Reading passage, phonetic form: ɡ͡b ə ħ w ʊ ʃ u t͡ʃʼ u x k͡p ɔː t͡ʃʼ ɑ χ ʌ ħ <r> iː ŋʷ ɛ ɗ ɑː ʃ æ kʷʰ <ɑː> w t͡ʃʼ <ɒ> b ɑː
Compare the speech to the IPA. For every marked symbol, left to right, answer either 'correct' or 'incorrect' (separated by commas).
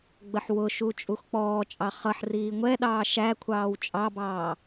correct, correct, incorrect